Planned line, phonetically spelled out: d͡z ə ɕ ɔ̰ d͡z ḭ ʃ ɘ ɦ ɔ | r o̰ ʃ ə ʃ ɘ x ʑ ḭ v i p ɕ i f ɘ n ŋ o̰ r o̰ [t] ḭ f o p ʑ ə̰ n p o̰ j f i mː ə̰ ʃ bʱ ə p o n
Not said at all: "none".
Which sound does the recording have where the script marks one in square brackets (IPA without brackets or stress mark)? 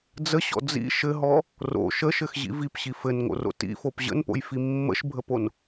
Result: t